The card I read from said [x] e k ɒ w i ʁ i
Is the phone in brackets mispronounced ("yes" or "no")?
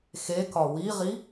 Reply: no